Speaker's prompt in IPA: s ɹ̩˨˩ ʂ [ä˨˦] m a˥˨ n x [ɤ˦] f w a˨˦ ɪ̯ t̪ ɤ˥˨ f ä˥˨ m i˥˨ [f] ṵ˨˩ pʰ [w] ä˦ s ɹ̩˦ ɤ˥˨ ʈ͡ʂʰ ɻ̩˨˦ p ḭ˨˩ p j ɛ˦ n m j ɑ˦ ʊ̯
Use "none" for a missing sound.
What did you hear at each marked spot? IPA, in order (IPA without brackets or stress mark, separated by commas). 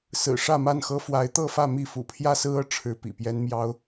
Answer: ä˥˨, ɤ˦, f, j